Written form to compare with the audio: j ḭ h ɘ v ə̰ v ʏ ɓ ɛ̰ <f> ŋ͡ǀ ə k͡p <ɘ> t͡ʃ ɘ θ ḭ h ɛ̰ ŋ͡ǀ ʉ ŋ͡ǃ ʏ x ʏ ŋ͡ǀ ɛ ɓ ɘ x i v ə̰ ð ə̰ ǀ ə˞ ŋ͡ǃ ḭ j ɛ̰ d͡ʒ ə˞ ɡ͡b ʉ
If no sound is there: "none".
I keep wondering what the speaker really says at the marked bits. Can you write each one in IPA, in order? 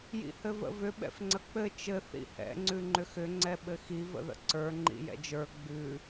f, ɘ

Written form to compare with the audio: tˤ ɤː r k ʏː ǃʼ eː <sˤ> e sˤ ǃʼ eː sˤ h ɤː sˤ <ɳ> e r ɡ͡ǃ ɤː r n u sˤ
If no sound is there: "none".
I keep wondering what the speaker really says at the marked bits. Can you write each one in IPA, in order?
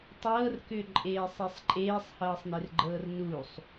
sˤ, n

